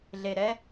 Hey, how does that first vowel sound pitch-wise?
low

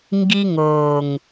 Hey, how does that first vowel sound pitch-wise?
high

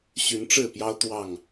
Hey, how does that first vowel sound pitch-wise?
rising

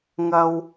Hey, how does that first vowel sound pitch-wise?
high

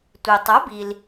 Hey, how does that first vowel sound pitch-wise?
low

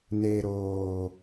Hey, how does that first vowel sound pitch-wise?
low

